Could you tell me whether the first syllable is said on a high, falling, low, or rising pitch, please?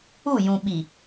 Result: falling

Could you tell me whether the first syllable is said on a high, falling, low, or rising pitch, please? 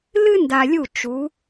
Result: high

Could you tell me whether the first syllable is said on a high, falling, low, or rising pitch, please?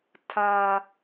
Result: low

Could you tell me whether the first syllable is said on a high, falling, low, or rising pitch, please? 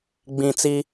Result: low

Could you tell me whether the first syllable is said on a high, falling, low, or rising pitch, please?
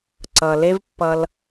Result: low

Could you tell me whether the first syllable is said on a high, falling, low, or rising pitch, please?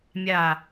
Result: low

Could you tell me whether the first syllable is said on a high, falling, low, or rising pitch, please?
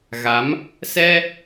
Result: rising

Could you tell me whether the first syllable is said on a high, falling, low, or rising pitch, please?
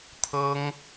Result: high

